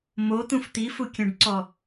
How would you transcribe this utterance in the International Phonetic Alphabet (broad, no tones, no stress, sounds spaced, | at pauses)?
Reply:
m o t̪ ũ f t̪ i f u kʲ œ̃ ɖ ǀ ɔ